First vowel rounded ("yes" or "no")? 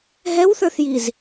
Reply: no